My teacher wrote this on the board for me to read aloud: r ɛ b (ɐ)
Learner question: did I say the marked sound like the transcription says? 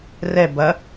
yes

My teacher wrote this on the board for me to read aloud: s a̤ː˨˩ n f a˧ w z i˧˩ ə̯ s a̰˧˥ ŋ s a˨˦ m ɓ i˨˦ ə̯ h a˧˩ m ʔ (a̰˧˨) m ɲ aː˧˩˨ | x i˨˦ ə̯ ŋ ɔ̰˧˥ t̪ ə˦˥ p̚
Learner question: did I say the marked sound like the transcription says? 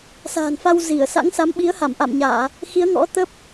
yes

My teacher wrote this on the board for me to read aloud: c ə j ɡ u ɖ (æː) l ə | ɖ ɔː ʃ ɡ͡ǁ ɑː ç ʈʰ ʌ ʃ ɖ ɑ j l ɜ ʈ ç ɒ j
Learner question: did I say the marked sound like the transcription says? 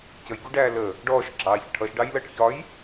yes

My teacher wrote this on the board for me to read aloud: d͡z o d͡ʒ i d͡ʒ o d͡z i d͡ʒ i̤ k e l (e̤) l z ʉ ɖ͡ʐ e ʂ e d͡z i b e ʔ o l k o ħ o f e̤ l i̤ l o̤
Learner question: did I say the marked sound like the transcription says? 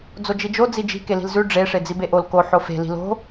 no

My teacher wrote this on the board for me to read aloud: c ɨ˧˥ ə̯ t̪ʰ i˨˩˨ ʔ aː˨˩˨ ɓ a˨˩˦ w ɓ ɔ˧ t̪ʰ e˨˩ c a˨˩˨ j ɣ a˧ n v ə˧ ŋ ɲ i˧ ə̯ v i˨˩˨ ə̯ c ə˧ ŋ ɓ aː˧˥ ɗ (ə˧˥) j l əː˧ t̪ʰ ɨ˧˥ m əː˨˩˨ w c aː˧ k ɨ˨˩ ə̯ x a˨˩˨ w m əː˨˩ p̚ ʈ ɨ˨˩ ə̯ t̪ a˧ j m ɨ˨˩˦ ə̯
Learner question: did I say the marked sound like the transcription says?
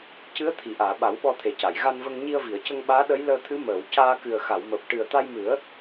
yes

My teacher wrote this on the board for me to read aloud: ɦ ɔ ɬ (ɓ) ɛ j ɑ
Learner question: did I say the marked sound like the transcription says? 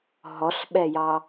yes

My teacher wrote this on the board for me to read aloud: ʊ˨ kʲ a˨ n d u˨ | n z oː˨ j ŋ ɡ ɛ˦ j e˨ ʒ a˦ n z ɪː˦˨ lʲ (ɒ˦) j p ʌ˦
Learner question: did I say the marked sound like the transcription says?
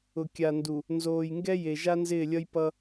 no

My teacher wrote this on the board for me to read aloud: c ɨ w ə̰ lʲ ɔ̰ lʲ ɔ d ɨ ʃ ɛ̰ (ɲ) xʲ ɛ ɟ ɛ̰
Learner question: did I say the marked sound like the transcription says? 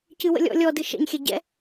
yes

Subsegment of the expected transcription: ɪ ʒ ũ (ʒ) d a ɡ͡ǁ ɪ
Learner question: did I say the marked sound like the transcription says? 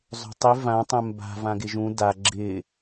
no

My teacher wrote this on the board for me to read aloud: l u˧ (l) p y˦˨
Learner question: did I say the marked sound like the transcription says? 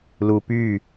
no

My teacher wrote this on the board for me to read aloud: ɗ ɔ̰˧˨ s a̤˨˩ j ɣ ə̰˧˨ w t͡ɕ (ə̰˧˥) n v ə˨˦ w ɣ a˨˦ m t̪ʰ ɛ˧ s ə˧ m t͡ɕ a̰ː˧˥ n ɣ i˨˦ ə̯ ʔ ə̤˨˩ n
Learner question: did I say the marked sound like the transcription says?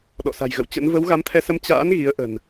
yes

